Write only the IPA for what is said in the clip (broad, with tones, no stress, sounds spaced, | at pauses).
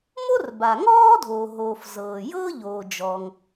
m o˥ r b a˩ ŋ ɔː˥ dʱ oː˩ ɦ oː˩ f z ɤː˩ j ɤː˥ ʎ oː˩ d͡ʒ ɔː˩ ŋ